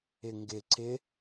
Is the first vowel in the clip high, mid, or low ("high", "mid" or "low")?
high